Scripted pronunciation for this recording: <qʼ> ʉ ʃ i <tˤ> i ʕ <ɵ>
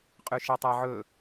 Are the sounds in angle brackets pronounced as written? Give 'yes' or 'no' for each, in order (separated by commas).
yes, yes, yes